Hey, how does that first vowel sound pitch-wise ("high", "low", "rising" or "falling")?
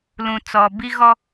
low